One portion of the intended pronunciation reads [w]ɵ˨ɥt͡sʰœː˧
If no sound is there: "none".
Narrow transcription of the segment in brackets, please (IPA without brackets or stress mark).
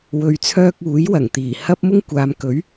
w